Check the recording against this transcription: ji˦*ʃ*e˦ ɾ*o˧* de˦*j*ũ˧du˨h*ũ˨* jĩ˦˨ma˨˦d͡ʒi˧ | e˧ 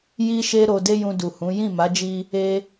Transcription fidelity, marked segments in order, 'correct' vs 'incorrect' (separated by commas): correct, correct, correct, incorrect